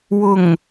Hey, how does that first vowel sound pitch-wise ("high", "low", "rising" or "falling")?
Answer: low